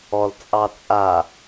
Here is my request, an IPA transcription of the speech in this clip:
ɔl t͡sʼɑt͡sʼa

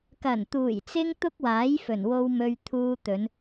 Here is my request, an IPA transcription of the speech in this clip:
kɐ˨˩nt̪uː˨˩jt͡sɪ˧ŋ t̪ʊ˥k̚waː˨˥jfɵ˨˩n wo˧wmɵ˧ɥt̪ʰuː˧t̪ɵ˨˧n

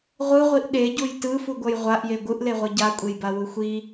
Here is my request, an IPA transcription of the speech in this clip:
ʁʷɯʁʷiʔ ɗeɟuj tɯfuɡʷʌj ʁʷaʔje ɡʷɯʔleʁʷɯ ɟakʷʼejbawu xʷi

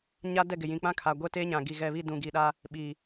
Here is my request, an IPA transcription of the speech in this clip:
ɲa˦dɛ˦˨ɡɪ˨ jĩ˨k͡pã˦kʰa˨ ɡʷɛ˦teː˦ɲã˨ ɡi˨ɣɛ˨βi˦˨ dũ˨ɡi˨ɗa˦ | ɓiː˨

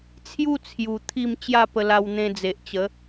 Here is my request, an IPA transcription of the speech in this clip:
t͡sʰju˥˧t͡sʰju˨˩ t̪ʰi˥˧m t͡ɕja˥˧pə˧ la˧wn̪ẽ˧d͡ze˨ʔt͡ɕə˨˦

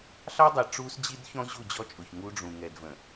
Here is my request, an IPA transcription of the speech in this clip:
ɬɑ˦dˤɛ˨ ʈ͡ʂu˦sd͡ʑi˦d çɔ̃˦ ʑu˦˨d͡ʑɔ˦t͡ʃʼʊ˨ç ŋu˦ɖ͡ʐũ˨ ŋɛ˨dvə̃˨

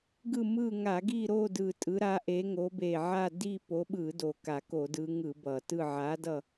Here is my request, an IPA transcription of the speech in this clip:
ɡɯ˦˨mɯ˦˨ŋa˧˩˧ ɡi˦˨ɾo˦˨dɯ˨˩ tʼɯ˨˦ɾa˨˦ʔe˨˦ŋo˨˦ be˨˩ʕa˦˨ di˦˨ po˨˦ɓɯ˧˩˧do˨˩ ka˧˩˧ko˧˩˧dɯ˨˦ŋɯ˧˩˧ bʌ˨˩tɯ˦˨ ʕa˨˦dʌ˦˨

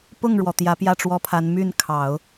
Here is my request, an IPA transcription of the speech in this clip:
pʊ˥˩ŋɻwɔ˩ t̪jä˧˥pjä˥˩ʈ͡ʂwɔ˥pʰa˧˥n my˥˩nkʰɑ˨˩˦ʊ̯

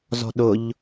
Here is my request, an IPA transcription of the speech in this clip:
zɔ̤ɗʊʎ

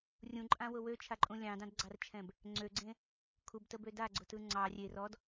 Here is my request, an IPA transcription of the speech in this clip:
rʲũǃʼãwʊ wøt͡ʃʰaǃʼũ lʲɑ̃dɑ̃dɡ͡ǀɑrt͡ʃʰɛ̃b | ŋ͡ǀøɡ͡ǀẽ | kʰubtəbø daɡ͡ǀʊtɯ ŋ͡ǀɑ rʲe rɔd

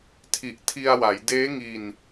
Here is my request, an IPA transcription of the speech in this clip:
tʰi˨˩ʔtʰi˧a̯wa˩˦j deː˦˥ŋi˧n

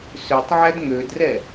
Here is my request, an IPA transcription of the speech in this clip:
søtˤʕæd ŋødrɛ

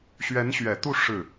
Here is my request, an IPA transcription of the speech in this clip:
ɕɥɛ˧˥nɕɥɛ˨˩t̪u˥˧ ʂɻ̩˥˩

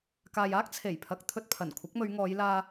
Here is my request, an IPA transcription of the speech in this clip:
kaː˨jaː˥k̚ t͡sʰe˨˩jpʰɐ˨k̚ t̪ʰɵ˧t̚pʰɐ˨˩n kʷʰɐ˨˥k̚mɵ˨˧ɥŋɔː˨˧jlaː˧

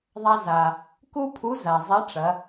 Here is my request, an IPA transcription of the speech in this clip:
ðˤa˧ za˩ | ku˥pʰu˧˥ za˩ zˤɐ˧˥ʈ͡ʂɐ˩˧

